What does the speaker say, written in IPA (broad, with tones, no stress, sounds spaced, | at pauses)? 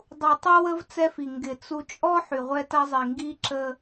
dˤ u˨ tˤ ɛ˦ w ə˦ v t͡s ɛ˦ f i˨ ŋ ɡ ɪ˨ t͡s u˨ t͡ʃʼ ɔ˦ ħ y˨ ʁʷ ɛ˦ t ɐ˦ zˤ i˨ ŋ ɡ i˦ ǁ ə˦